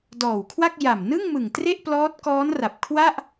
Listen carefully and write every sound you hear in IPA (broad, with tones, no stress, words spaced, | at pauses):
dɔː˨˩wkʰwa˥˩k̚ ja˨˩mnɯ˥˩ŋmɯ˨˩ŋ tre˥˩ʔplɔː˦˥t̚kɔː˦˥nra˨˩p̚ kʰwa˥˩ʔ